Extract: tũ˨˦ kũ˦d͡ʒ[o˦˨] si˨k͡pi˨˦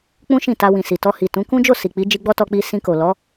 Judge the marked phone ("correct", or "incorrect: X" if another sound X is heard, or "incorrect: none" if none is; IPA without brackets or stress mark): correct